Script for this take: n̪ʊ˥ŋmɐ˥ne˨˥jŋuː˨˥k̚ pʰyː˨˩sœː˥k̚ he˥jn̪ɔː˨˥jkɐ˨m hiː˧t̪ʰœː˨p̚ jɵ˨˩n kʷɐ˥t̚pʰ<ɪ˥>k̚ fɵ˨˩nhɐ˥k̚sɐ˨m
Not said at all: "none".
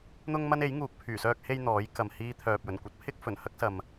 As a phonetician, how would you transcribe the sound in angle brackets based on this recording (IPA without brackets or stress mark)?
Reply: ɪ˥